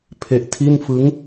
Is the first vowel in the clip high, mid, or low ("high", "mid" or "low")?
mid